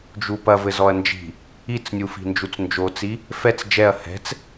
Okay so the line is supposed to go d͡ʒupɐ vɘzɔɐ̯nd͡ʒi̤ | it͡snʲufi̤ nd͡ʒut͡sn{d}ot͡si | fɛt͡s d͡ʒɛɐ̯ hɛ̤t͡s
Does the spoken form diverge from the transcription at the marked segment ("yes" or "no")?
yes